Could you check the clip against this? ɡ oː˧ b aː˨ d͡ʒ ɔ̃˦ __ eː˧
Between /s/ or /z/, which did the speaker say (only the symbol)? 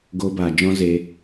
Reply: z